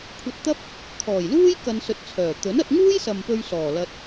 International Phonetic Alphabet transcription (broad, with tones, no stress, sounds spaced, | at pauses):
kʷʰ ɐ˧ t̚ t̪ ɐ˥ p̚ | kʰ ɔː˨˩ j l uː˥ j k ɐ˧ n s ɵ˧ t̚ t͡sʰ œː˨˩ t̪ ɵ˨˥ n ɐ˧ t̚ ŋ uː˥ j s ɐ˨ m p ɵ˧ ɥ s ɔː˨˩ l ɐ˧ t̚